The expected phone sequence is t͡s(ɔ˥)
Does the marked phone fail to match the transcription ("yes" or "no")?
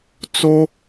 yes